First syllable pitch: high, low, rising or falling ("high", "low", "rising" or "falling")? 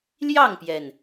falling